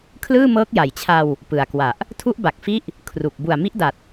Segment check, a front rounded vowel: absent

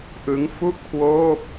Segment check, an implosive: absent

